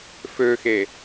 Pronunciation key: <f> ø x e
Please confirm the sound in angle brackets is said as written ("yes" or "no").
yes